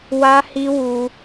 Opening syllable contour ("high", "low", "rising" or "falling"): high